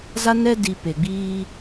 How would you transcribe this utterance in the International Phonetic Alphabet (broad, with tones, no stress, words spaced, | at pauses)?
za˦nɛ˦ di˨ pe˨ɡ͡biː˦